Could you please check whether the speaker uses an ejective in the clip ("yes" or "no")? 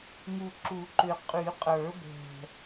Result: yes